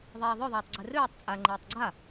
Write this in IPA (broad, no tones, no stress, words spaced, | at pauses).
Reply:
ðˤɛːðˤœðˤɛːtˤ ɡ͡ǀɛrøːtˤ t͡sʼa ŋ͡ǃɛːtˤɡ͡ǀa